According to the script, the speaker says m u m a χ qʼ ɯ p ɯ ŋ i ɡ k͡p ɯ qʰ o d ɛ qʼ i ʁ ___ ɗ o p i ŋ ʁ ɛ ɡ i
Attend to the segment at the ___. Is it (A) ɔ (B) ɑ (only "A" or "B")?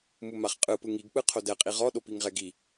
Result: A